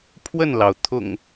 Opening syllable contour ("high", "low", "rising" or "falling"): falling